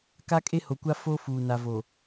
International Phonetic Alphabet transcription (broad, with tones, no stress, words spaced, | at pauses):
ka˦kʼe˦ho˨kʷa˦ fo˦ fuː˨na˨vo˨